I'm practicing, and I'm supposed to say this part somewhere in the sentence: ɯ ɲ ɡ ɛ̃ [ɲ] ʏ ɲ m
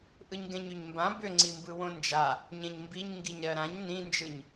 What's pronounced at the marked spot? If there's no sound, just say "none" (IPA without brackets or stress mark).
ɲ